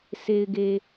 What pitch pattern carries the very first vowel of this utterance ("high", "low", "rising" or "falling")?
low